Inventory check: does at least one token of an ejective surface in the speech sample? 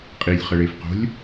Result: yes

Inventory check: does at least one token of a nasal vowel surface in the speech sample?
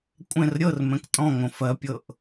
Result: yes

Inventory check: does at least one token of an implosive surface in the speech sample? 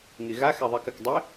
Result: no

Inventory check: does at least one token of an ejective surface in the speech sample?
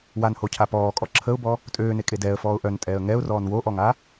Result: yes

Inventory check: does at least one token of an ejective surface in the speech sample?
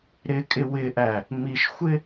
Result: yes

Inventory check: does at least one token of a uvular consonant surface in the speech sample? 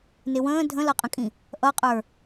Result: yes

